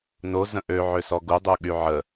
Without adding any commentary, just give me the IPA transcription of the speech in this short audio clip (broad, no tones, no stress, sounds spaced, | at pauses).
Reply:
n o z ə̃ ʔ ø ʕ ø s ɔ ɡ u dˤ u ɠ y ʕ ə